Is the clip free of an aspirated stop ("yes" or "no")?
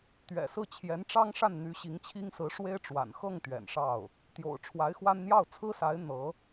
no